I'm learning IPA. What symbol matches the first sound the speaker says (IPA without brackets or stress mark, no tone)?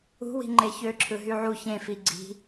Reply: ṳ